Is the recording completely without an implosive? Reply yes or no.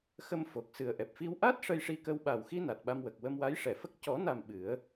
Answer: no